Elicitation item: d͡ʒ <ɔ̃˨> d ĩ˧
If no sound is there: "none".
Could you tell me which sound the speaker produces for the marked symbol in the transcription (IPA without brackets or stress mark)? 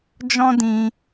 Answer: ɔ̃˦